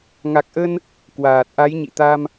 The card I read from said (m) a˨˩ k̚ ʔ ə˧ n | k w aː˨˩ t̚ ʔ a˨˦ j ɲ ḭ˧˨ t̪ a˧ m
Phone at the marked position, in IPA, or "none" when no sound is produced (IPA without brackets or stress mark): ŋ